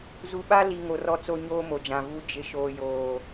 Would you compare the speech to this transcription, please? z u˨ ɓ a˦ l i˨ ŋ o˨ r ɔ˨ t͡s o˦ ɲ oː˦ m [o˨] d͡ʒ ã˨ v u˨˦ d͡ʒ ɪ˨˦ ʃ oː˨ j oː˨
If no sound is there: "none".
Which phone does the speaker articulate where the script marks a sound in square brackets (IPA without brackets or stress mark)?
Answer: o˨